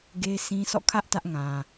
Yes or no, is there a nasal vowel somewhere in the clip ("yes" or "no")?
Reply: yes